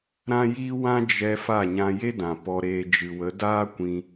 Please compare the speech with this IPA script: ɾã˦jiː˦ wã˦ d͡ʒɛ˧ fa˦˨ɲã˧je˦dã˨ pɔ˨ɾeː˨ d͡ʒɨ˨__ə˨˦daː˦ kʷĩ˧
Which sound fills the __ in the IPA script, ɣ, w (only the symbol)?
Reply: w